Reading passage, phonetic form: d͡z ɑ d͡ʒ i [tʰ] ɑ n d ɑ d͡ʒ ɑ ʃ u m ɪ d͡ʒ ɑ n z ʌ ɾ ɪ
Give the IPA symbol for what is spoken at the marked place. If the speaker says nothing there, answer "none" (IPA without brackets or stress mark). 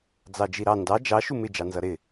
ɾ